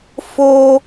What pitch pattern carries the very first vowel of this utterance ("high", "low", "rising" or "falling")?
high